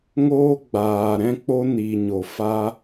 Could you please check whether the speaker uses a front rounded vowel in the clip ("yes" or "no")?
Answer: no